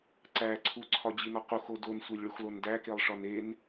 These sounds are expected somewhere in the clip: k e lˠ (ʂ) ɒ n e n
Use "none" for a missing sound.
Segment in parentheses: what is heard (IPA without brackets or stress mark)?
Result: ʂ